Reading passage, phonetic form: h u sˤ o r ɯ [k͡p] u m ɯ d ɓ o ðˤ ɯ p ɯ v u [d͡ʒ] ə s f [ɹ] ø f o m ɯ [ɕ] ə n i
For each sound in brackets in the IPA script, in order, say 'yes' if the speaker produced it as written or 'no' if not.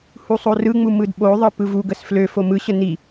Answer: no, no, no, yes

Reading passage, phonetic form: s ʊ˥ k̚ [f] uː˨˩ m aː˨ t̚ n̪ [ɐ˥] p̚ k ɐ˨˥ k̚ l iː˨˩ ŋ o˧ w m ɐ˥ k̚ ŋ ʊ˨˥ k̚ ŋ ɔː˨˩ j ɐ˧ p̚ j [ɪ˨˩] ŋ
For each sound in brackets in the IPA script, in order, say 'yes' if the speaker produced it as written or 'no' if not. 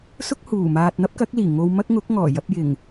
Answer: no, yes, yes

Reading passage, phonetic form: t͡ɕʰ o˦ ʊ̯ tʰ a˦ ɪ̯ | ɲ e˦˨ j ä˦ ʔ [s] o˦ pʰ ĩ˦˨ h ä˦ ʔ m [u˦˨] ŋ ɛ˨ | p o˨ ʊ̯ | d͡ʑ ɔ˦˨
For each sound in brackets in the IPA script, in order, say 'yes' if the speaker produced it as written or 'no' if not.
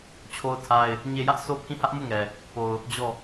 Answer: yes, yes

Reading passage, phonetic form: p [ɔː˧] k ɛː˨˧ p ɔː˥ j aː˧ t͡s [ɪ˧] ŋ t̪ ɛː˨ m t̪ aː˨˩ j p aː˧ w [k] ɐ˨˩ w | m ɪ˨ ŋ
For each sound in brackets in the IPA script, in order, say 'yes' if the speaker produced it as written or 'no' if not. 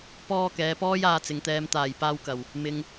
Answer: yes, no, yes

